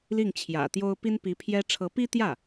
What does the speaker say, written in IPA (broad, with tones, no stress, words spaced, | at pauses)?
li˥˩ŋt͡ɕʰjä̰˨˩t̪jo˥ʊ̯ pi˥npi˧˥pʰjɛ˥ ʈ͡ʂʰɤ˧˥pi˥t̪jä˥˩